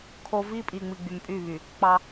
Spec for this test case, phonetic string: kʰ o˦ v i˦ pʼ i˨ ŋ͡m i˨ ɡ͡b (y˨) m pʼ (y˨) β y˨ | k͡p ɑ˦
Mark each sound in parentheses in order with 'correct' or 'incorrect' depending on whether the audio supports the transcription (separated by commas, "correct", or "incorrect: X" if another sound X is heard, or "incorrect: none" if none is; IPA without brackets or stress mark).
correct, incorrect: y˦˨